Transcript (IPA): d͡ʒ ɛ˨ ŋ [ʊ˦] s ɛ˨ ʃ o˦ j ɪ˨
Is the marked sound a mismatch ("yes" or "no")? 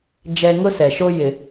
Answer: no